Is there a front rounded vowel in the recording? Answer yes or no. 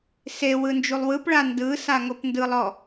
no